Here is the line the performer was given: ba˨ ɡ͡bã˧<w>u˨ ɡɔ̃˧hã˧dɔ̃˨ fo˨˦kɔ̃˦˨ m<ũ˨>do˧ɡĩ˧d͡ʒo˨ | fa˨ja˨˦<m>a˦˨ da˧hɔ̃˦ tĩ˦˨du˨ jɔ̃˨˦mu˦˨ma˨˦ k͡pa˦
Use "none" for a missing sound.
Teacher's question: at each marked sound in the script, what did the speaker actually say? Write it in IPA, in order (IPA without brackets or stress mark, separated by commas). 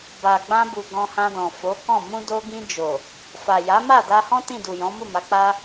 b, ũ˧, m